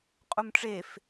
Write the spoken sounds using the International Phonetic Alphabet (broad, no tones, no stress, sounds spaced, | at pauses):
qʼ u m ʈ͡ʂ e f